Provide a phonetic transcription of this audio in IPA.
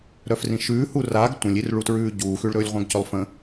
ɾ œ f r ĩ ʃ ʉː h u r a ɡ tʷ ə̃ lʲ i r ɭ u t ɹ ʉː ɟ uː x ʉ ɭ ɾ ɵː lʲ ʁʷ œ̃ ɡ c ɵ lˠ f ə̃

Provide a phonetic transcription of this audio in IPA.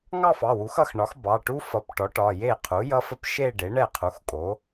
ŋ ɑ˥˧ f ɑ˩˧˩ w u˩˥ x ʌ˥˩ x ɳ ɒ˩˥ x b ɑ˩˧˩ ʈ u˦˥ f ʌ˩˥ p ʈ ɔ˩˥ ʈ ɒ˩˧˩ j e˥˩ qʰ u˩˥ j ʌ˦˥ f ə˦˥ p ʃ e˥˧ ɖ e˩˥ ɳ ɛ˥˩ qʰ u˩˥ x kʼ o˩˥

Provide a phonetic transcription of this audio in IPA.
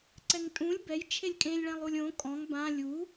ǀ ɛ ŋ tʼ ũ lʲ b ɛ j t͡ʃʰ e lʲ kʼ ẽ lʲ ɭ ɛ̃ lˠ u lʲ õ kʼ ɔ̃ ŋ b ã lʲ u

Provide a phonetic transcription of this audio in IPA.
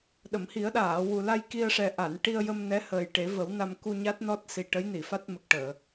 ɗ ə˨˩˨ m h i˨˩˦ ə̯ ɗ aː˨˩˨ w u˨˩ l a˧ j k i˧ ə̯ ʂ ɛ˨˩ ʔ a˨˩˨ n ʈ i˧ ə̯ j ə˧ m n ɛ˧˥ h əː˨˩ j ʈ e˨˩˦ v ə˨˩˦ w n a˧ m k u˧ ɲ a˦˥ t̚ n ɔ˦˥ t̚ s i˨˩ ʈ ə˧˥ j n i˨˩˨ f a˦˥ t̚ m ə˨˩ k̚ ʈ əː˨˩˨

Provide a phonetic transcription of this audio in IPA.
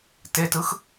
t e t ɯ x

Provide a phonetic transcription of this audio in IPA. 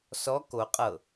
s ɔ k o qʼ ɤ

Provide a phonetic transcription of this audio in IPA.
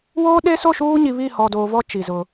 w oː˦ ɗ e˦ s o˦˨ ʃ uː˦ ɲ i˨ β i˦˨ h ɔ˨ d oː˨ v ɔ˦ t͡ʃ i˨ z ʊ˦

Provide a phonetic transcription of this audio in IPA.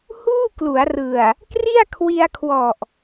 h uː˥˩ k l u˩˦ a̯ r ɯ˨˩ a̯ | k r i˥˩ a̯ kʰ w i˧ a̯ kʰ w ɔ˨˩ ʔ

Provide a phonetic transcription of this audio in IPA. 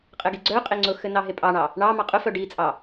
qʼ ɘ ɡ i ɡ͡ǀ œ qʼ e ŋ͡ǀ ʊ x ɘ n ɑ ɦ e pʼ ɑ ɳ ɑ | ɳ ɑ m ɑ qʼ ʊ f œ ɖ i t͡sʼ ɑ

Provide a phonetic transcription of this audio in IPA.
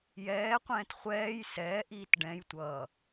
j ɛː qʷ ɛ̃ː t χʷ ɛː j s ɛː ʔ iː t ɖ ɛ̃ j tʷ ʌː

